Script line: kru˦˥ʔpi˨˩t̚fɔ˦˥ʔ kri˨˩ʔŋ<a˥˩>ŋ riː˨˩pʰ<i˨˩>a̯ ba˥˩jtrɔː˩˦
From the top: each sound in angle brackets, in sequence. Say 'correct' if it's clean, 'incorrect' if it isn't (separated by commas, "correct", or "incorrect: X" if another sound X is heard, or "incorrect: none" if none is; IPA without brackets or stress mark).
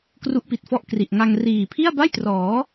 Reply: incorrect: a˧, incorrect: i˥˩